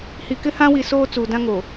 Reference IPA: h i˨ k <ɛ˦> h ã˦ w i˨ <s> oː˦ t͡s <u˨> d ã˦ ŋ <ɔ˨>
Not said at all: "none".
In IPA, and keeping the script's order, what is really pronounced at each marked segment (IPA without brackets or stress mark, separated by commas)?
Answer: ɪ˦, s, uː˨, o˨